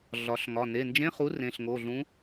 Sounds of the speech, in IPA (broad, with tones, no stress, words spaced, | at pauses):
ɮɒ˩˧ɬŋɒ˩˧˩ ne˩˧˩nd͡ʒẽ˧˥˧χu˨˥ rẽ˩˧˩ɬŋo˩˧˩ɮũ˨˥